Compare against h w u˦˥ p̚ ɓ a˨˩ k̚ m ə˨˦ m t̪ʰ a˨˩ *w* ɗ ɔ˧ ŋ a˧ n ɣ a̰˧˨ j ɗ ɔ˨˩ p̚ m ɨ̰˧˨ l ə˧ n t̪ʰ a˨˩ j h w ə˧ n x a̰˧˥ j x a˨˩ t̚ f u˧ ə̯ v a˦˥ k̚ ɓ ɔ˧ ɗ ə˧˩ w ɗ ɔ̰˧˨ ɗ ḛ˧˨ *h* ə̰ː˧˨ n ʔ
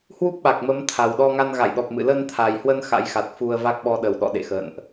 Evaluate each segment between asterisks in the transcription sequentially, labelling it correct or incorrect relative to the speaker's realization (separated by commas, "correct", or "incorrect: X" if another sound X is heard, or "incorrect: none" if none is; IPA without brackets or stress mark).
correct, incorrect: x